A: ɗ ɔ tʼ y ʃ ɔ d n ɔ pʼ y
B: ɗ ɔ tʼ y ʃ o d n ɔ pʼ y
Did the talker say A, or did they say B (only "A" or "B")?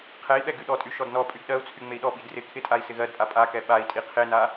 A